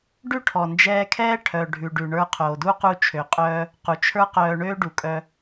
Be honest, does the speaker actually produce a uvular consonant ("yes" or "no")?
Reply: yes